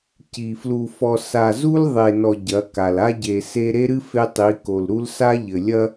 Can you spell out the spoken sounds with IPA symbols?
ci˨flu˨ fɔ˨ sa˨zu˦lðˤe˨nɔ˨ ɟɐ˨˦ka˨l a˦ɟe˨ se˦ ɾe˦ɾɨ˦ fe˦tˤi˨˦ ko˨lɾu˦lsa˦ ʎɘ˨lʲɐ˦

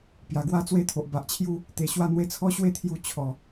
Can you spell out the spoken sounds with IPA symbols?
pja˨˩ɡwa˦t͡swe˥˧t̪ʰo˨ʔ ba˨ʔt͡ɕʰju˦ | t̪e˨˩ɕwa˥˧ n̪we˧t͡sʰɔ˦ ɕwe˦t̪ʰju˧ t͡ɕʰɔ˨˩

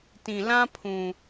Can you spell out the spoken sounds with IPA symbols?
tĩ˨lã˦ pʰũ˨

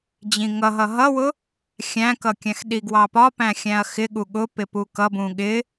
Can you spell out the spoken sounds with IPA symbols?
d͡ʑĩŋʌ ɦʌɦʌwʊ | xʲæ̃kʌkʲæ̃x ɗiɡwɑpɒ pæ̃xʲæ̃ɐ̯xɪ ɠuɠʊpɪ pukʌbũ ɠɪ

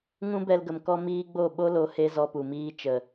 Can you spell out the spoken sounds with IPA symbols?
ŋũ˦bɛ˧lɡə˨m kɔ˧ miː˦ɡ͡bo˦˨ ɓo˦lo˨˦ he˦zɔ˧pu˨miː˦ t͡ʃə˨

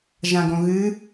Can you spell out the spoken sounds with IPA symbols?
ʒãɡõɣɨ

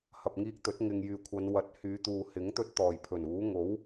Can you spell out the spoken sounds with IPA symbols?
hɐ˨p̚ŋiː˧k̚t̪ɵ˨˥t̚ ŋɪ˨ŋjyː˨kʷʰɐ˨˧n wɐ˨t̚hyː˨˧t̪uː˨ hɪ˨˥ŋt̪ɵ˧t̚t̪ɔː˨˩j pʰɵ˨˩nuː˨˥ ŋo˨˥w

